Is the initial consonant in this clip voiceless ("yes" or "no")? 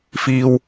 yes